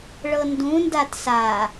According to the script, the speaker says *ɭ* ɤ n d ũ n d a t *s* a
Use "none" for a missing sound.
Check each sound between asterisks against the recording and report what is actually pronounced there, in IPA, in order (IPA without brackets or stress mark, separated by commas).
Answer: ɭ, s